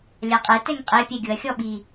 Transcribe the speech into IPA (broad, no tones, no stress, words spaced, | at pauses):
lʲaqʼe tɛŋqʼe pʲɛɡʲʊɐ̯ xʲɔɓi